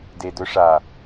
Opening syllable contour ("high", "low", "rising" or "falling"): low